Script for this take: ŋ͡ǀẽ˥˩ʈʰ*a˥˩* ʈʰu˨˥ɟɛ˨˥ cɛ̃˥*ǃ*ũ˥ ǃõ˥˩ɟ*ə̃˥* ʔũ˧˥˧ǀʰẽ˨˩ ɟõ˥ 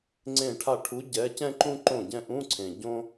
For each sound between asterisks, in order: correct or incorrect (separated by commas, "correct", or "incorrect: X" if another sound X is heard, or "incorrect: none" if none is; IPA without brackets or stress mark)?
correct, correct, incorrect: ɛ̃˥